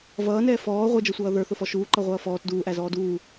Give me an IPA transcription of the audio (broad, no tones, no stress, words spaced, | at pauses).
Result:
vʌːnɛː fɔː ʁʷɛd͡ʒʌsʷʌː ðə˞θʊfɔ ʃuːǃʌʁʷʌː fɔːt duːʔæzɔː duː